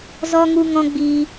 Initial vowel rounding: rounded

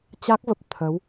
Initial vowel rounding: unrounded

